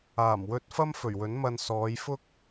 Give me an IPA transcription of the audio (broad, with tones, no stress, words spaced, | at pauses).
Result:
aː˨˩mwɵ˧t̚fɐ˥m fɵ˨˩ɥwɵ˨˥nmɐ˧n sɔː˨˧jfʊ˥k̚